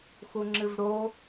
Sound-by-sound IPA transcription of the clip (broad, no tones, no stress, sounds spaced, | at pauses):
x u ŋ͡ǁ ɨ v ɽ o